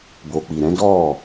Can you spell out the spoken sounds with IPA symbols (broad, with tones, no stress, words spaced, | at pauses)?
bo˨k͡pi˨ɾɛ̃˨˦dɔ˦˨